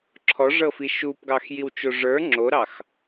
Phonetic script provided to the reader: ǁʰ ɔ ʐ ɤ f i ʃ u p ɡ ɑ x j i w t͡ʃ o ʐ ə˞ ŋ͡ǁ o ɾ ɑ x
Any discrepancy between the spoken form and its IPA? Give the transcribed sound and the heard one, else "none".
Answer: none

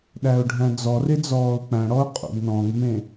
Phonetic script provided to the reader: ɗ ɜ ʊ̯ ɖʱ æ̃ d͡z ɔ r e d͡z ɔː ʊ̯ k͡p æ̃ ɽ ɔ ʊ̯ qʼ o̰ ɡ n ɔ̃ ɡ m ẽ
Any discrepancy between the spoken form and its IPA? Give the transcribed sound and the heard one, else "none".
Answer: ɜ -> æ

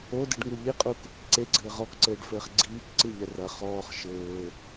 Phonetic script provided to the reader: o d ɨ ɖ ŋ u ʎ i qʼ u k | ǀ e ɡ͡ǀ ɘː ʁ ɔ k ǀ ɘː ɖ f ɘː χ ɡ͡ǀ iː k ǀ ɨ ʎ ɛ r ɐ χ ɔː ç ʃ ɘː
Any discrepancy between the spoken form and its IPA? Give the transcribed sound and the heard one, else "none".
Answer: ç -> χ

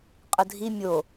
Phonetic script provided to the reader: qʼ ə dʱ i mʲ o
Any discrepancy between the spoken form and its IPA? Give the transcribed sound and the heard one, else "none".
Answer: none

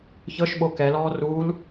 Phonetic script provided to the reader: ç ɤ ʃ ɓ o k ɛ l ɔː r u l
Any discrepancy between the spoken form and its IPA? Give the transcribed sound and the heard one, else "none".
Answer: none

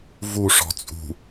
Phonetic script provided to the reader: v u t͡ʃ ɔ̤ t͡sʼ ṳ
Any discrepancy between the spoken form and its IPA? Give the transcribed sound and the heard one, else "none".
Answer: t͡ʃ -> ʂ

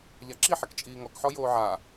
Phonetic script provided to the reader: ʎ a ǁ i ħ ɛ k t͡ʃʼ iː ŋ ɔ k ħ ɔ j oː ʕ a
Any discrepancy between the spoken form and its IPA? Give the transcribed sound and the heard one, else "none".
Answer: none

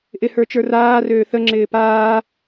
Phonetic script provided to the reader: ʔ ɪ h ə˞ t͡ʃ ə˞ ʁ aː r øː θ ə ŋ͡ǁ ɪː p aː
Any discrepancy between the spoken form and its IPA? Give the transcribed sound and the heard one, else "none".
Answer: ʁ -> r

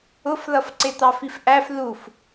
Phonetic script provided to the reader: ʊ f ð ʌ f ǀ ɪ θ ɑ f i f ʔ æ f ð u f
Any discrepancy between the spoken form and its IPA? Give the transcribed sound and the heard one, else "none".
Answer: θ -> t̪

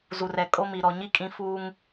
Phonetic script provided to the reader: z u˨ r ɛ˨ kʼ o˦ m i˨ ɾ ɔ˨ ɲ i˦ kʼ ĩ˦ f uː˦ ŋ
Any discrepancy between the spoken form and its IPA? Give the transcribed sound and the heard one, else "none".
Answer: none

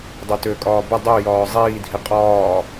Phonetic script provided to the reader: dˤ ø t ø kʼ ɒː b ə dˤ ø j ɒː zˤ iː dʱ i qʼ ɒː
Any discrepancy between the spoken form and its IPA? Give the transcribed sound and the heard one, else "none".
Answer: none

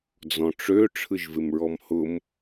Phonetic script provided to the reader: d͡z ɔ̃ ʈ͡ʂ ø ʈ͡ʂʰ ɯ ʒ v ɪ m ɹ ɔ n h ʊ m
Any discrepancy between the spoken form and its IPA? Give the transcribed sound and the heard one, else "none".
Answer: n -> m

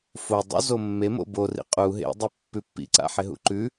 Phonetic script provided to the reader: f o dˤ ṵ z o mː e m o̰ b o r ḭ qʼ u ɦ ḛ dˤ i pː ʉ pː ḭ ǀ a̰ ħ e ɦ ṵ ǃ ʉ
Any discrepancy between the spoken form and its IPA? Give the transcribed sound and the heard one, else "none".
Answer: none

